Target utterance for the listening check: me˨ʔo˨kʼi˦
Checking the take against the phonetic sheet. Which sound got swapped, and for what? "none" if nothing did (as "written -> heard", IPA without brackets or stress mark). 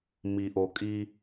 e˨ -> i˨